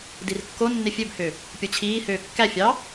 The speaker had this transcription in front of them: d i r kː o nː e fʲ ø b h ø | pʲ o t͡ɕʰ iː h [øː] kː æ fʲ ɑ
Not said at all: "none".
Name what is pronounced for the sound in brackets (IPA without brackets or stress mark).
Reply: øː